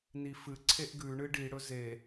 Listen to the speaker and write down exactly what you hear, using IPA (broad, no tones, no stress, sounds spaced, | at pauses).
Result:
n i f ɨ ǀʰ e ʔ ɡ ʉ ɳ ɨ ɖ i ɽ ɵ z e